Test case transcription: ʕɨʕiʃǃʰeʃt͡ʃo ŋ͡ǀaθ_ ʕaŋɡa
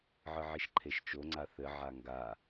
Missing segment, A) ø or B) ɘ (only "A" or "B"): B